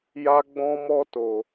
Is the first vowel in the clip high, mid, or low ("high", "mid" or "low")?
low